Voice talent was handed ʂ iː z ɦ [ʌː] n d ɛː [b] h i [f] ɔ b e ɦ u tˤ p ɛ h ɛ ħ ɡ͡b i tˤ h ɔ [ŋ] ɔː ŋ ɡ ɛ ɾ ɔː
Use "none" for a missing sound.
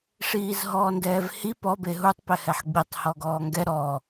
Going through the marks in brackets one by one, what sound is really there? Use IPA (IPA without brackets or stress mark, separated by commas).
ɔː, v, p, ɡ